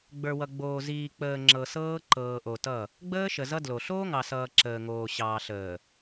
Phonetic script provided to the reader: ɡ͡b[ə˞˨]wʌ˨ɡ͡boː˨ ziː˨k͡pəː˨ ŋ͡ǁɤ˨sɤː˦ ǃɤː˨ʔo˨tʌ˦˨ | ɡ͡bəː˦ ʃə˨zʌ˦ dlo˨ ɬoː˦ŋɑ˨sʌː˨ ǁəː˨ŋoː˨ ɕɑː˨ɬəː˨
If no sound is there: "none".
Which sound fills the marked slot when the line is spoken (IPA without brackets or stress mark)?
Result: ə˞˨